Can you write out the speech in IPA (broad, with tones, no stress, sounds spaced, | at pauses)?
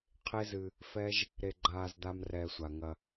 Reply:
qʰ e˦ z ɨ˧ | f ɛ˦ ʒ | ɾ e˧ ɡ͡ǃ aː˧ z d̪ a˦ m r ɛː˧ sʷ a˨ ŋ ɐ˧